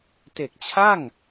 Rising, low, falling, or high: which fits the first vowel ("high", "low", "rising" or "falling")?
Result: low